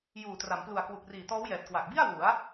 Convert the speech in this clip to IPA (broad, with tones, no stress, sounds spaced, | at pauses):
j uː˨˩ t r a˩˦ m p l u˨˩ a̯ k w u˨˩ k̚ r iː˨˩ t ɔː˦˥ w j ɛː˨˩ t̚ k w a˨˩ k̚ b i˥˩ a̯ w u˩˦ a̯